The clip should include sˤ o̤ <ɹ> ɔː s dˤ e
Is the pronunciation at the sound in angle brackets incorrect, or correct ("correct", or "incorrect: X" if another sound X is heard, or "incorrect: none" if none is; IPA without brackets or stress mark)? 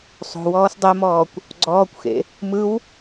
incorrect: w